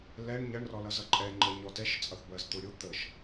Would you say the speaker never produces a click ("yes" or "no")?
no